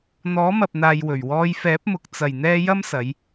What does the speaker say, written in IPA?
n̪ɔː˨˥mɐ˨p̚n̪aː˨j wɵ˨˩ɥwɔː˧j fɛː˨˥p̚mʊ˨k̚ t͡sɐ˨˩jn̪ɛː˧ jɐ˥msɐ˨˧j

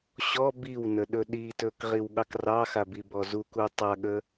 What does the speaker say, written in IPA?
ɕɔ biwnə ɗɵɗitɵk ʁiwɠɑkrɑxa bibɔzuku tˤaɠə

